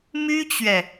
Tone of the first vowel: high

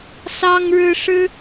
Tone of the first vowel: high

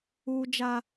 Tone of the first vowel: high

